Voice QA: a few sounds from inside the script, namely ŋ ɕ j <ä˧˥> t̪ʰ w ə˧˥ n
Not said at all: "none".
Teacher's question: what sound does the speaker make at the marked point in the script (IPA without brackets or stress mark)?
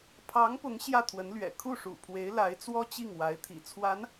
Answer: ä˥˩